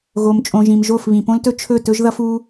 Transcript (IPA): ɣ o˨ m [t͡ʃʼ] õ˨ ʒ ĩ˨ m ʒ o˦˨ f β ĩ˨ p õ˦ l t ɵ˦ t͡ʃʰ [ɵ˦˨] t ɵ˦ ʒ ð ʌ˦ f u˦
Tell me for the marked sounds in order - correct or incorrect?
correct, correct

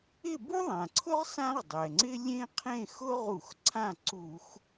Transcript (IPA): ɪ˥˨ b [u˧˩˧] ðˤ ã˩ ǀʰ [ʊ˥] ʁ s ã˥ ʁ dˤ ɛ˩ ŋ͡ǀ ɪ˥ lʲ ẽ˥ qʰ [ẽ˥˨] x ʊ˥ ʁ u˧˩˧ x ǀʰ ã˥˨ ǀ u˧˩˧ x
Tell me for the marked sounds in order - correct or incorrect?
incorrect: u˥, correct, correct

